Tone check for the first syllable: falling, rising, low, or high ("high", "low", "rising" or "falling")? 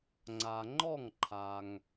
low